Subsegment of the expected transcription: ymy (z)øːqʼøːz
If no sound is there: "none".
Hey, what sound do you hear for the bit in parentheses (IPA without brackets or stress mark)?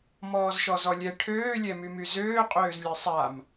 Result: z